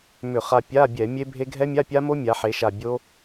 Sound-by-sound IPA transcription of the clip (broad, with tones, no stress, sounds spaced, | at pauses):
m ʏ˧˩˧ χ a˧ pʲ a˧˥˧ bʲ ɛ˧˩˧ mʲ e˦˥ bʱ e˦˥ ɡʱ ɛ˦˥ mʲ a˧˥˧ pʲ a˦˥ m o˦˥ mʲ a˩˧ ħ e˩˧ ʃ a˨˩ bʲ o˦˥